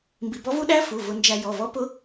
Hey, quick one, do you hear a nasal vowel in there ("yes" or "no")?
no